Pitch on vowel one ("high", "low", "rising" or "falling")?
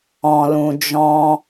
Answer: low